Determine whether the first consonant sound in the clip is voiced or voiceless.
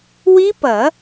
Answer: voiced